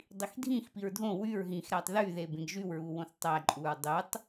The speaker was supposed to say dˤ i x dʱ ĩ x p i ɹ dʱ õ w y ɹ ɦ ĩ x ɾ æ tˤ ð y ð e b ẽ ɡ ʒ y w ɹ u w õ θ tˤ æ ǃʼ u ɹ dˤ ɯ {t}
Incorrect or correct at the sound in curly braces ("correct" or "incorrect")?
incorrect